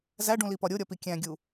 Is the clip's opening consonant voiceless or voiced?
voiced